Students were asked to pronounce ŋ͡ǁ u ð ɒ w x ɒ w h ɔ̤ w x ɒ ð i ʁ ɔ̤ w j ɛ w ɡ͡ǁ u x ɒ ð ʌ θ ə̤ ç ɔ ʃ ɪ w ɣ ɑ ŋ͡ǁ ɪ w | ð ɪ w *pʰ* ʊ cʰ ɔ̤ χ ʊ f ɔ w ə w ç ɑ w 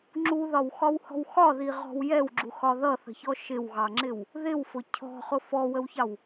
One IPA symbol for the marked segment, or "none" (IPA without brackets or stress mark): f